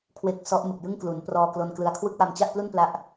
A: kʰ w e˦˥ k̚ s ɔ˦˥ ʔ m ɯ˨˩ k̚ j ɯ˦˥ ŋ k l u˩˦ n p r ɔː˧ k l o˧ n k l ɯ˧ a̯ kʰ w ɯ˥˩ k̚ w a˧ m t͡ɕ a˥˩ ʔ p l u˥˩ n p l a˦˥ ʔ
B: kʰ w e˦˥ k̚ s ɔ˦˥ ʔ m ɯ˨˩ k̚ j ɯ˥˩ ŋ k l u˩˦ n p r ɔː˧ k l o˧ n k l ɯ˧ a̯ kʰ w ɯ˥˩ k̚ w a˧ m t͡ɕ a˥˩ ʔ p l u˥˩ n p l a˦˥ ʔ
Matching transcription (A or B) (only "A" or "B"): B